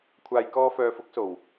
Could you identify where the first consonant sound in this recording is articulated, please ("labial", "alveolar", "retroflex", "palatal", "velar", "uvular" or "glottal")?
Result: velar